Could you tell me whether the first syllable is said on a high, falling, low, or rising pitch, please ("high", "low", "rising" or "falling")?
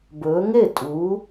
rising